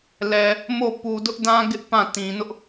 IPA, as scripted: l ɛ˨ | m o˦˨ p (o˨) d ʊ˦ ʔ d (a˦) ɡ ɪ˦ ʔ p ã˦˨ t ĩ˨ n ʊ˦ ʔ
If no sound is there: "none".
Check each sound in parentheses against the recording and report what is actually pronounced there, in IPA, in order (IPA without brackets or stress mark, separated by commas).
u˨, ã˦